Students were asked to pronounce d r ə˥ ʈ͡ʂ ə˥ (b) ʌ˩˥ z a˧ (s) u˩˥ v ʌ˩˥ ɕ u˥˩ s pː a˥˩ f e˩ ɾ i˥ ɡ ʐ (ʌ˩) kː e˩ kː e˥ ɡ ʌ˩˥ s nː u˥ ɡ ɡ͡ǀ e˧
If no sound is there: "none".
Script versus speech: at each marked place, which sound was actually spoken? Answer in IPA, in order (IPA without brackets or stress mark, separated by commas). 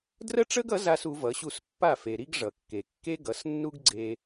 ɡ, s, ʌ˩